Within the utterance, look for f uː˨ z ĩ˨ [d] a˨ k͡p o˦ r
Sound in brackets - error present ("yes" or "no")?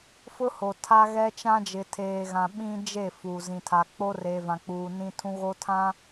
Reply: yes